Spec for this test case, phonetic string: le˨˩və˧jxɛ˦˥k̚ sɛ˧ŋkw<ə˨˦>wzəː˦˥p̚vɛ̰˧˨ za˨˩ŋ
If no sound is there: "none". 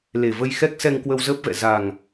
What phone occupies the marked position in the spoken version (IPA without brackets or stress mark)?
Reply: ə˧